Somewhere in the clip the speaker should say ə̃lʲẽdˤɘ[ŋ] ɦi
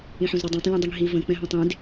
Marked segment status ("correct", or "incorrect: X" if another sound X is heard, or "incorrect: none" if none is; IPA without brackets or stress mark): correct